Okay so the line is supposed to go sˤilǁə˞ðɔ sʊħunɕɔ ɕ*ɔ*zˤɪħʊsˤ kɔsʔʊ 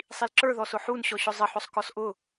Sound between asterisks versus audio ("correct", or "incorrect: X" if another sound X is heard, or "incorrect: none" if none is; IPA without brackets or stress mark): incorrect: ʊ